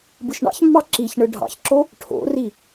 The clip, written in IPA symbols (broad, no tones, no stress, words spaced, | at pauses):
bɯʃɳɑ̰çmːɑ ǁiçɳɯ ɖʱɑ̰çǁo | ʈʰo̰ri